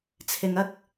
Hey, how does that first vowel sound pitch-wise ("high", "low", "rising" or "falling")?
low